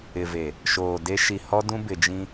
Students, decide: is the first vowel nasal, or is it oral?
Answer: oral